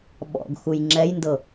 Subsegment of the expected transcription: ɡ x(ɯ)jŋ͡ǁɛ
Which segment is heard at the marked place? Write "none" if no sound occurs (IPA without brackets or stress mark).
u